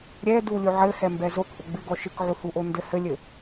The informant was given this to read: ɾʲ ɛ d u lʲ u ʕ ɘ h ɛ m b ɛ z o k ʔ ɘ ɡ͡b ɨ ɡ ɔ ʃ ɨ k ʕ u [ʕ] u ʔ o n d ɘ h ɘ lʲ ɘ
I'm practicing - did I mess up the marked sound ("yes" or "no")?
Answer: yes